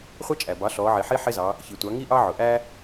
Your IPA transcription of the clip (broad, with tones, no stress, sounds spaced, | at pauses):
χʷ ɑ˥ t͡ʃʼ æ˩ b ɑ˩˥ ɬ ɔ˩˧ ʕ i˩ ħ i˥ ħ ɪ˥ z ɑ˩˧ | ç i˩ tʷ ɑ˩˧ ŋ i˥ ʔ ɑ˥ ʕ ʊ˩ ʔ æ˥